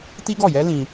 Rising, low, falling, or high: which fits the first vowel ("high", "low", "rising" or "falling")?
high